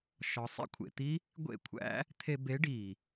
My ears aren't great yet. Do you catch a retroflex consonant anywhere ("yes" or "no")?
yes